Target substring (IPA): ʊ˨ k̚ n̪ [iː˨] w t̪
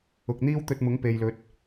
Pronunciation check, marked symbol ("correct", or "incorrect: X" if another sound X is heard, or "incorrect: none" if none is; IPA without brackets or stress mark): incorrect: iː˥